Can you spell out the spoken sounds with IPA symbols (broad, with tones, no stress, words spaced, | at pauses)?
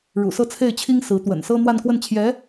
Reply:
ɻṵ˨˩sɤ˥˧t͡sʰe˥˩ɪ̯t͡ɕʰi˥ŋ sɹ̩˧˥ t̪wə̰˨˩n sɤ˥n̪wa˥˧nkwə˥˩n t͡ɕʰjɛ˧˥